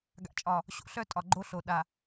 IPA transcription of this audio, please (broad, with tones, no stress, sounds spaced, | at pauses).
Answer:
ɡ a̰˨ t͡ʃʼ ɒ˨ | ɕ o̰˨ ɬ œ˦ tʼ ɒ˨ ɡ͡ǃ o˦ ɬ o˨ ɗ a˨